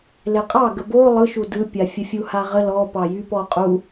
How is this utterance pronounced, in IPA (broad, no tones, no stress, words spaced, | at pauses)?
leqʼɑɡə bo lˠɯʃu dɯpʲa fʲəfʲuhaʁə lɔpɑjy pɔqʼu